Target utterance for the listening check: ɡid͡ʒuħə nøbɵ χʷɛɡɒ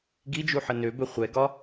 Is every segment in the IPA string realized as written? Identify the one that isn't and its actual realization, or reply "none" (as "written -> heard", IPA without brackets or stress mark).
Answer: none